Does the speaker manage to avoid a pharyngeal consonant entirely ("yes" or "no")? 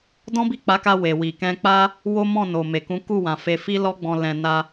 yes